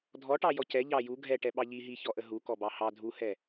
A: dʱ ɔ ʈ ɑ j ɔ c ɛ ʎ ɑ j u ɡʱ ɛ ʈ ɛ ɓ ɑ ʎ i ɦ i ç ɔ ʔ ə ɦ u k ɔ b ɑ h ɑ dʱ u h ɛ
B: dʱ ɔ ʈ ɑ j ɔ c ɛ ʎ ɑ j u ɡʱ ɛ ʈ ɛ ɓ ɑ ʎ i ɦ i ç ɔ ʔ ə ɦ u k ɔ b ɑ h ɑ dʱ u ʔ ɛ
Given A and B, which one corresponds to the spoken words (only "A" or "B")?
A